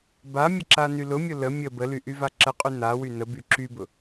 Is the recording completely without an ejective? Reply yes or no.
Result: no